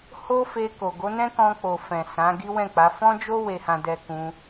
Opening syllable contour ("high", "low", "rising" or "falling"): high